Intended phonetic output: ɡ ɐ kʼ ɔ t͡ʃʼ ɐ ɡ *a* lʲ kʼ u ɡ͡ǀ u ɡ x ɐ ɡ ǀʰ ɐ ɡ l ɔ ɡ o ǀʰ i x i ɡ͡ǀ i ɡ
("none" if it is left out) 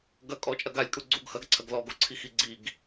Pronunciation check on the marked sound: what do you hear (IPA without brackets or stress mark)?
a